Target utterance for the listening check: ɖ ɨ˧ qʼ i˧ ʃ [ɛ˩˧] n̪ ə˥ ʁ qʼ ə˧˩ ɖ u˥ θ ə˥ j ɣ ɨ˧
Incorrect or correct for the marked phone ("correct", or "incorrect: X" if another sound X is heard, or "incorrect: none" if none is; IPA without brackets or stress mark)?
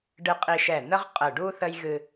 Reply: incorrect: ɛ˧˩